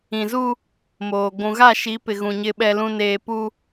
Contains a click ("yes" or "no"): no